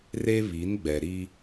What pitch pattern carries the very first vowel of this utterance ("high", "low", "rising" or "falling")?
high